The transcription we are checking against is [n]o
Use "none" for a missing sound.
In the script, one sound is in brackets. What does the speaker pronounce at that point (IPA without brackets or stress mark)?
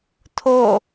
tʰ